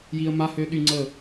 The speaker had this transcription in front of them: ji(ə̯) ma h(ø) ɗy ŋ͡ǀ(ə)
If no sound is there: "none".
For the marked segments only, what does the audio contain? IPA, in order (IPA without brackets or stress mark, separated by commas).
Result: ə̯, ø, ə